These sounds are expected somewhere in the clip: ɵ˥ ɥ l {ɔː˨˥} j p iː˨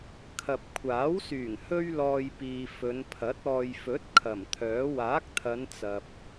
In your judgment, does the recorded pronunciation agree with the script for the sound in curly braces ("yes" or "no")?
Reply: no